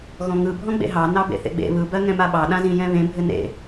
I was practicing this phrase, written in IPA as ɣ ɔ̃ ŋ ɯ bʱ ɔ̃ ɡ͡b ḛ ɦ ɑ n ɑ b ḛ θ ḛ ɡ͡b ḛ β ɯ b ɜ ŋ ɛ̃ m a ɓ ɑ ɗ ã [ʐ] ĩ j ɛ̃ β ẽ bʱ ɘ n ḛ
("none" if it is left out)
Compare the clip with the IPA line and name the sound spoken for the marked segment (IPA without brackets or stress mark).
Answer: z